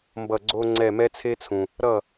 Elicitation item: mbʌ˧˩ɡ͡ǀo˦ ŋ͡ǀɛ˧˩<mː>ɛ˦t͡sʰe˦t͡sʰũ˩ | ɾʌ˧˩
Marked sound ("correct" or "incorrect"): incorrect